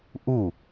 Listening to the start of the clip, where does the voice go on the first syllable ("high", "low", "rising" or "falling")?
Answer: falling